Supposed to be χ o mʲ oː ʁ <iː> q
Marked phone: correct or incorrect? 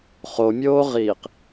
correct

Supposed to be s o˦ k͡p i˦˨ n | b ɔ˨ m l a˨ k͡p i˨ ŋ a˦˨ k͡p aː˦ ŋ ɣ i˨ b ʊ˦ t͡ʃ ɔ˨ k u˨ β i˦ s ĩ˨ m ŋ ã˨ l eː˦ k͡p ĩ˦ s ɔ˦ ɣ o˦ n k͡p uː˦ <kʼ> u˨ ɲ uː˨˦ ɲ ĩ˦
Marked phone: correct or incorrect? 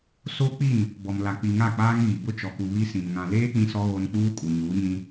correct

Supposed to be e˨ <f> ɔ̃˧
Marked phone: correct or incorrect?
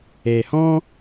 incorrect: h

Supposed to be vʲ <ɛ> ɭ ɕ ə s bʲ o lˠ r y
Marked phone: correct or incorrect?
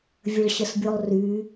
incorrect: ə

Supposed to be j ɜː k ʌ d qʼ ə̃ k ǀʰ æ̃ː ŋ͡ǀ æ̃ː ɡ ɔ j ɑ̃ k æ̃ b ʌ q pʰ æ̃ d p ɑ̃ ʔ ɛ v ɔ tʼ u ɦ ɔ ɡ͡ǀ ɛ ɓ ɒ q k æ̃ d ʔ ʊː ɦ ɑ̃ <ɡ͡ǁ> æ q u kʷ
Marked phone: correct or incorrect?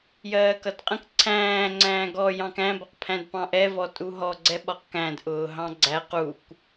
incorrect: ɡ͡ǀ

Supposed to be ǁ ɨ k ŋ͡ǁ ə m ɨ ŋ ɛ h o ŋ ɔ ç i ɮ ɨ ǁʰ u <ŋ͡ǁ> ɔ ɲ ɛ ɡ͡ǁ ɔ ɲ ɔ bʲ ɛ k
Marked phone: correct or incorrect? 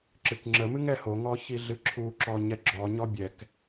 incorrect: ǁ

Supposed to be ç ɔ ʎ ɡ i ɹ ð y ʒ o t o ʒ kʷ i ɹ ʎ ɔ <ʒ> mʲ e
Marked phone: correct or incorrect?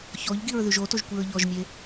correct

